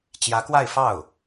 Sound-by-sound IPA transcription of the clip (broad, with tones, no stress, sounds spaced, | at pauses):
t͡ɕ j ä˧˥ k w a˥˧ ɪ̯ f ɑ˥˩ ʊ̯